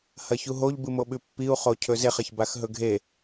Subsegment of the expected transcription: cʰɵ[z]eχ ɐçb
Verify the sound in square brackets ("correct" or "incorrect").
correct